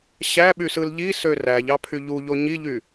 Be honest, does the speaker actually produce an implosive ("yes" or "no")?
yes